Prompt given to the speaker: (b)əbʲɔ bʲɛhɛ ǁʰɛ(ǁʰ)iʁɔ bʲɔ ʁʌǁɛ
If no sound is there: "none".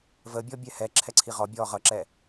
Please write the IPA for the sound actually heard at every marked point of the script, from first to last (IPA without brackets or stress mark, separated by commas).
v, ǀʰ